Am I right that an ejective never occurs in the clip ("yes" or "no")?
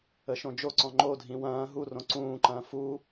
yes